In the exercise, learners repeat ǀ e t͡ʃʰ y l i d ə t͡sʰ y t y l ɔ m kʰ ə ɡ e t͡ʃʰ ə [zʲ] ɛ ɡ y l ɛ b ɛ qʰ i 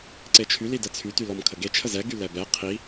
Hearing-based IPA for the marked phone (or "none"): z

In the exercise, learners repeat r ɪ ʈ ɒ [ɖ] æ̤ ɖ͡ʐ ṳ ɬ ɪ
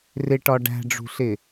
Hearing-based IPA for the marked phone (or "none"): ɖ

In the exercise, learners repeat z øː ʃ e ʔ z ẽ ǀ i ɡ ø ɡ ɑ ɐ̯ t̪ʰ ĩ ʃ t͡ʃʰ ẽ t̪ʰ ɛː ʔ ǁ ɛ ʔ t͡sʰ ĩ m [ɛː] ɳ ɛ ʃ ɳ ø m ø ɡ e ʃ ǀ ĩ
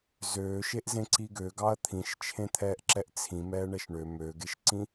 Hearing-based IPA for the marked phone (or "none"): ɛː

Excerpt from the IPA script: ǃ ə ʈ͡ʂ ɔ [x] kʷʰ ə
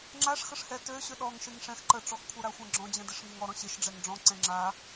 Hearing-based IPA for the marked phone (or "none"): x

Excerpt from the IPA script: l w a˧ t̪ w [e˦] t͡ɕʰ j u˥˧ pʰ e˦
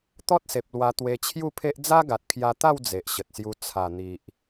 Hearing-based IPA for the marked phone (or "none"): e˧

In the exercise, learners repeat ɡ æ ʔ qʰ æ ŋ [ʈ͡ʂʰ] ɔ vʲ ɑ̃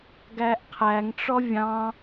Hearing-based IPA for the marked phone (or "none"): ʈ͡ʂ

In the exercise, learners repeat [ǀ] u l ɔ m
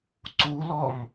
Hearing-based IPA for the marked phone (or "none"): ǀ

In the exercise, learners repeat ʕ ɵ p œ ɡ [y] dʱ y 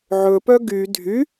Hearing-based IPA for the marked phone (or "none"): y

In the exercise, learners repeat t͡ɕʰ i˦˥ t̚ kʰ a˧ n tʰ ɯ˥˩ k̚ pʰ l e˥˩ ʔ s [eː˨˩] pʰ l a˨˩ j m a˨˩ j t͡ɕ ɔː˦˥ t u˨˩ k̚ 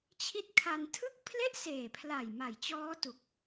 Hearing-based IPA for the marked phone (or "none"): eː˨˩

